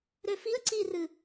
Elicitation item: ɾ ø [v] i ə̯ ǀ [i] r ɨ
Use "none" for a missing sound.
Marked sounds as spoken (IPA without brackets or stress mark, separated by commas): f, i